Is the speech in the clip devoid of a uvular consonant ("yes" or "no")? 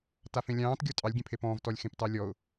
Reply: yes